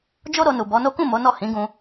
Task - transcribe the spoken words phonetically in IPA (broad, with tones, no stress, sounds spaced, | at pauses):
d͡ʒ o˦ ɾ o˧ n u˨ b ɔ˨˦ n o˦ k ũ˦˨ m o˨˦ n ɔ˦˨ h ĩ˨˦ ɡ ũ˧